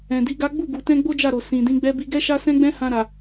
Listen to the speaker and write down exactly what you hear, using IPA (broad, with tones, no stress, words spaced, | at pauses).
ɛ̃˨di˨˦ɡa˦ ɡ͡bu˦˨ɡu˨tɛ̃˧ ɡ͡bo˦d͡ʒa˦˨ɾo˨ sĩ˨ dĩ˨˦ɡ͡bɛ˦bi˦ ɡɛ˦ʃa˦sɛ̃˦ɡ͡bɛ̃˦ hã˧ɾa˨